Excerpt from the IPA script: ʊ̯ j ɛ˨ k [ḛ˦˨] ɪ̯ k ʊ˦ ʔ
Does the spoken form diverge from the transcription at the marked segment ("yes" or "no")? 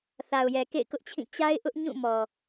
no